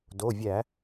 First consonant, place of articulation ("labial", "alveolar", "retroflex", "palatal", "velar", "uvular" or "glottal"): alveolar